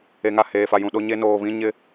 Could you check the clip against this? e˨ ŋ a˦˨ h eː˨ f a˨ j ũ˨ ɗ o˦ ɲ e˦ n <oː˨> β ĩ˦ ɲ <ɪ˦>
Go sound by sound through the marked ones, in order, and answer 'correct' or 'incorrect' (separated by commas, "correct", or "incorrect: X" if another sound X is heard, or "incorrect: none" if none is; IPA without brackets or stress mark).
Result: correct, correct